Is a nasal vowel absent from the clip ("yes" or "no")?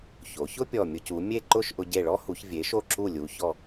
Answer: yes